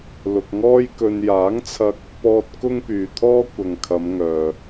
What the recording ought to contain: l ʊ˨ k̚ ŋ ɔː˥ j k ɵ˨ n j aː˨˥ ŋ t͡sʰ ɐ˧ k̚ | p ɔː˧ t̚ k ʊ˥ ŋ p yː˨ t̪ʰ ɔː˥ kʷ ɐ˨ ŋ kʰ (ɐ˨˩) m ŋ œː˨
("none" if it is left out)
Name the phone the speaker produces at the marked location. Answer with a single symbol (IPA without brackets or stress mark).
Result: ɐ˨˧